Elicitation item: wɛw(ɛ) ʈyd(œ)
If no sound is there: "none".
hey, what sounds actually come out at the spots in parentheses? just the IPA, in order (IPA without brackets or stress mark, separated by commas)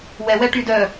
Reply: ɛ, œ